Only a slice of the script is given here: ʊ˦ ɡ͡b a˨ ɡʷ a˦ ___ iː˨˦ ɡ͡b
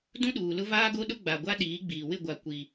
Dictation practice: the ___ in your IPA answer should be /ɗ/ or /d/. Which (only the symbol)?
ɗ